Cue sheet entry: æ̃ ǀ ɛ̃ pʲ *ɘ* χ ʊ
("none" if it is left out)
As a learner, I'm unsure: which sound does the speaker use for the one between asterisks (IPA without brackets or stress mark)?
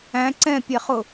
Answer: ɛ